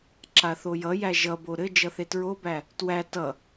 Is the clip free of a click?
no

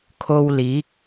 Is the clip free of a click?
yes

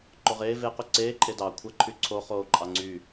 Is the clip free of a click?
no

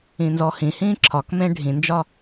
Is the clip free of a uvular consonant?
yes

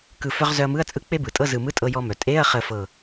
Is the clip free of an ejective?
no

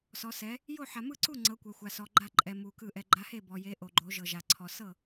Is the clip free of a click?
no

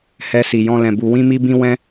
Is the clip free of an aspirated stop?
yes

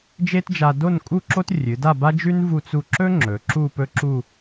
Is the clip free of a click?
no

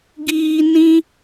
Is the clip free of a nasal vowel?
no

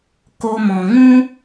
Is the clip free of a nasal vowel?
no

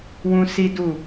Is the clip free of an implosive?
yes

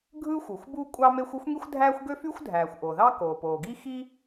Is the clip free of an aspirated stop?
yes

